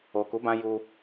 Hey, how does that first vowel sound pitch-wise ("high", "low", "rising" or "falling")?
low